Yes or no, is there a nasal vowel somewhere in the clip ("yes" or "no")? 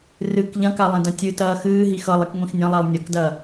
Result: yes